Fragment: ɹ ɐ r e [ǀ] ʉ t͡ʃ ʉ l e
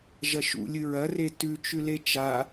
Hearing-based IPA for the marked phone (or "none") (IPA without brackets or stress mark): t